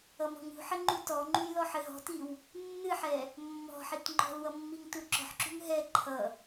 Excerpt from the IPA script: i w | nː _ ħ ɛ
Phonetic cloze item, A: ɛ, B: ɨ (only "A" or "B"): B